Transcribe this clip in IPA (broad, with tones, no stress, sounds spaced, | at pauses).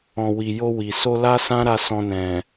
ɔ̃˨ w i˨ j o˧ w i˨ s o˧ l a˦ s ã˦ ɾ a˧ s ɔ̃˧ n ɛ̃˨